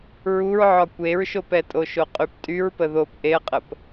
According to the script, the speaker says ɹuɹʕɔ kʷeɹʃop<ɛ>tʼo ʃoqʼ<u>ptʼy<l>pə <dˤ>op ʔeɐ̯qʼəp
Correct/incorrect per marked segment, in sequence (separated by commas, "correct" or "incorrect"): correct, incorrect, incorrect, incorrect